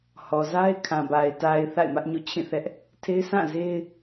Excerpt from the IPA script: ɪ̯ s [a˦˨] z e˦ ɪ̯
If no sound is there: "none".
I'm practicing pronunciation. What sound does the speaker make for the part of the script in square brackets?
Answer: ã˦˨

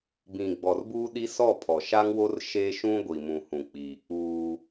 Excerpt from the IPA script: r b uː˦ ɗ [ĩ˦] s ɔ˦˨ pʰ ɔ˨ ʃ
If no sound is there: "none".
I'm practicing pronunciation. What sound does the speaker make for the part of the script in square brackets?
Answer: i˦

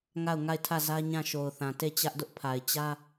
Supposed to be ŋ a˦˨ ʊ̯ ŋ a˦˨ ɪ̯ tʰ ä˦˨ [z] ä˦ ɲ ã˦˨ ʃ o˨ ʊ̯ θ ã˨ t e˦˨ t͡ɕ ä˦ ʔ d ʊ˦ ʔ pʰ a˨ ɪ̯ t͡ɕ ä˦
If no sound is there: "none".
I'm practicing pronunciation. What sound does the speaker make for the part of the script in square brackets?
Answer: z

